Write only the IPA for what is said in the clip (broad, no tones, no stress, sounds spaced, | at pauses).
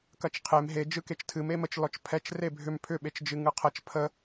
k ɐ t͡ʃ qʰ e m ɦ e d͡ʒ ɯ k e t͡ʃ tʰ ɨ m e m ə t͡ʃ l ɔ t͡ʃ pʰ ɛ t͡ʃ r e bʱ ʏ m pʰ ʏ ɓ e t͡ʃ d͡ʒ ɨ ŋ ɯ qʰ ɐ t͡ʃ pʰ ə